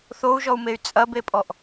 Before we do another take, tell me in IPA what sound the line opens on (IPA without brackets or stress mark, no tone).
θ